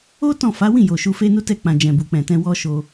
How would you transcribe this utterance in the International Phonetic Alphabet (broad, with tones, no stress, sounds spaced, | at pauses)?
o˦ t ɔ̃˦˨ f a˨˦ w ĩ˦˨ j o˨ ʃ u˧ f e˦ n u˦ t ɛ˦˨ k͡p ã˨ d͡ʒ ɛ̃˨ b u˨ k͡p ɛ̃˨ t ɛ̃˧ w ɔ˦ ʃ o˧